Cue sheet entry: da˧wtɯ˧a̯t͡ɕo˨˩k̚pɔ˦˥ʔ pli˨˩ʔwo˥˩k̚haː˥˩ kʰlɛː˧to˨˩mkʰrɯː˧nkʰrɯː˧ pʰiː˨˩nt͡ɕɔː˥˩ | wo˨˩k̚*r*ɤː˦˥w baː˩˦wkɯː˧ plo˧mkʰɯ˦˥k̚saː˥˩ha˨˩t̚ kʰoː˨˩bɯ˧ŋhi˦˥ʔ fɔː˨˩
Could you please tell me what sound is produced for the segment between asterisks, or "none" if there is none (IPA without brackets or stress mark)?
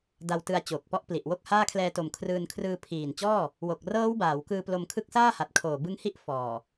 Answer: r